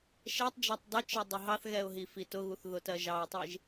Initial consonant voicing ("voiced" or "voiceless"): voiceless